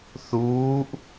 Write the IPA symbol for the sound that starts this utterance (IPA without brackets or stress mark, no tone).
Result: θ